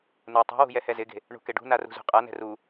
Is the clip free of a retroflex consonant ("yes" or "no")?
no